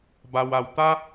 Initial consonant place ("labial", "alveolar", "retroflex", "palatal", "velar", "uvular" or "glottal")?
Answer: labial